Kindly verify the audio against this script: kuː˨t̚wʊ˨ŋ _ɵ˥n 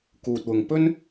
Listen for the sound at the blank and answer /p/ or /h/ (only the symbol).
p